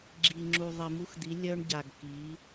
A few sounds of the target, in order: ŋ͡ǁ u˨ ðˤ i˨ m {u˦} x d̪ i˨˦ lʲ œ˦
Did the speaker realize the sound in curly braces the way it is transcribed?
yes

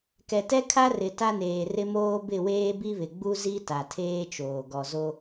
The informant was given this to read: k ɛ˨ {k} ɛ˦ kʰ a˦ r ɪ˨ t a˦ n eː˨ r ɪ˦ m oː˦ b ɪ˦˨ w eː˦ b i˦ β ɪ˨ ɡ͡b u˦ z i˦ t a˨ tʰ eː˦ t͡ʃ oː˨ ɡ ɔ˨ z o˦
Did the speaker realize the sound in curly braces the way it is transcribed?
no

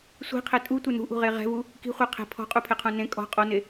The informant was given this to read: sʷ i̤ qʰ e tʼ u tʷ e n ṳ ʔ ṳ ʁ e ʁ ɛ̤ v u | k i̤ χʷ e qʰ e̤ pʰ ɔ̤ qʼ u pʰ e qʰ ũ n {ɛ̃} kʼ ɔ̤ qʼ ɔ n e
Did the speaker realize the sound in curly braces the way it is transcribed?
no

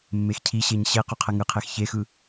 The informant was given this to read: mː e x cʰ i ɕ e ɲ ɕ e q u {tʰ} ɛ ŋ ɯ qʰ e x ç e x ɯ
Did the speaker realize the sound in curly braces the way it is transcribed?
no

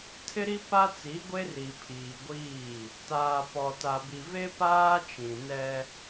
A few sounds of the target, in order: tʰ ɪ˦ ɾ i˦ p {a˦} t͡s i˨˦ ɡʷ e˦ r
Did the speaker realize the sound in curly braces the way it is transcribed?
yes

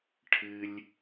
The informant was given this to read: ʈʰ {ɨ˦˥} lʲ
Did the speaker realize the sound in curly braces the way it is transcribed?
no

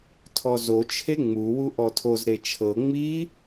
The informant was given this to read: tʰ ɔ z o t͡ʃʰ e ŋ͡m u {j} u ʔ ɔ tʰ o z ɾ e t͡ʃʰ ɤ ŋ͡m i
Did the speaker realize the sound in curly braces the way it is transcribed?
no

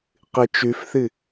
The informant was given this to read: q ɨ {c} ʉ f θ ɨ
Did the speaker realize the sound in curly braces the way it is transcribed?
no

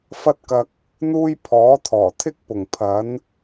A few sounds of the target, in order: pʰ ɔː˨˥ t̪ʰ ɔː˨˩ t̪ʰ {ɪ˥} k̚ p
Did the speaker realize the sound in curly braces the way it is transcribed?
yes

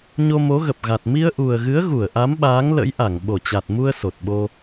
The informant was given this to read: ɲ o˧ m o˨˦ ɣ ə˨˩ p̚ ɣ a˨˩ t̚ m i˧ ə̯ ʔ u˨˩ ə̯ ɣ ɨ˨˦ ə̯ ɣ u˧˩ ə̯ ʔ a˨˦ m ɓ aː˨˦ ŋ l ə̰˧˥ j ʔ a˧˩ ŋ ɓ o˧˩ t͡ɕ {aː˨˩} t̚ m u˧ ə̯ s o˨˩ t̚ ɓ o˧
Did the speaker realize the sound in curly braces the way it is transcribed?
no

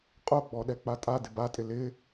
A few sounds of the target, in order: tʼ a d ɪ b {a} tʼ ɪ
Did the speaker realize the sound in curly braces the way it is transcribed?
yes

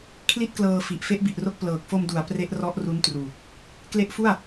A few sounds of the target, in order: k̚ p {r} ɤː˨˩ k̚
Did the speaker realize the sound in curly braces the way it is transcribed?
no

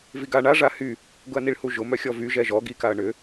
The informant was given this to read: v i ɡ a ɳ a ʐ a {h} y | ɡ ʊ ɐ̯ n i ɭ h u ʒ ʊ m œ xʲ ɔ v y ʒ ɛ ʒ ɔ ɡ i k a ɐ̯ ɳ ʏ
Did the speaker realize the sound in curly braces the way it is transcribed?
yes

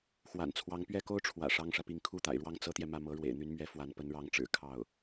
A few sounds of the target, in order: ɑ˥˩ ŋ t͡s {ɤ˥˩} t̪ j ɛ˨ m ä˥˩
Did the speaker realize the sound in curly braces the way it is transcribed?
no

